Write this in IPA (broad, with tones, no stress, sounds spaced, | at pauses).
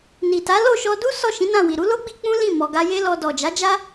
n i˨ t a˨˦ l o˦˨ ʃ ɔ˧ d u˦ s ɔ˦˨ ʃ ĩ˨˦ n ã˦˨ w i˨ ɾ u˨˦ l o˦ ɡ͡b i˧ k͡p ũ˦ l ĩ˦˨ m ɔ˨ ɡ a˧ j e˦ l ɔ˧ d ɔ˨ d͡ʒ a˨˦ d͡ʒ a˦